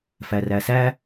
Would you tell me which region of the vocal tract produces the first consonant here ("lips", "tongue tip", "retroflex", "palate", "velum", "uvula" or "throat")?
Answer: lips